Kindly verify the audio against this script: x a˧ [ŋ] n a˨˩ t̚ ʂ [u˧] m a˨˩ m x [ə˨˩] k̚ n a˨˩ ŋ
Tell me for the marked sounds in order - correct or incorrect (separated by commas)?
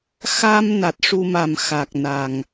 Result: incorrect, correct, incorrect